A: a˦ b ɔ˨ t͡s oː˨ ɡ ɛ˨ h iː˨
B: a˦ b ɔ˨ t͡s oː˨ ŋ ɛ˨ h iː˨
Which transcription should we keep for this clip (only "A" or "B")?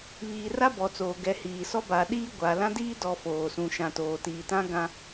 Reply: A